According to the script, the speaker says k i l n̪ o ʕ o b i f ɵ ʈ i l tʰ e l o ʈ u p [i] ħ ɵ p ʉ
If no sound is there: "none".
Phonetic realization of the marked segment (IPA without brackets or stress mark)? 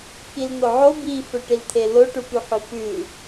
y